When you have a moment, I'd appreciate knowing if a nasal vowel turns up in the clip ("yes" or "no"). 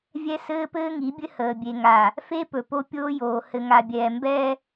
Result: no